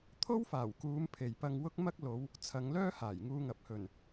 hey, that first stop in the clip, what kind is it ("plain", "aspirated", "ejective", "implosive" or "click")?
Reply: aspirated